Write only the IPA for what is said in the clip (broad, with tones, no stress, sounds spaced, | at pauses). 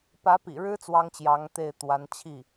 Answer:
p ä˧˥ p ḭ˨˩ ɻ ɻ̩˥ t͡s w ɑ˥ ŋ t͡ɕ j ɑ˧˥ ŋ t̪ e˥˩ ɪ̯ t̪ w a˧˥ n t͡ɕʰ i˥˩